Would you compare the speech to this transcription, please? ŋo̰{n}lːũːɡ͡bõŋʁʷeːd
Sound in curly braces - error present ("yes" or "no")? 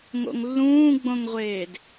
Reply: yes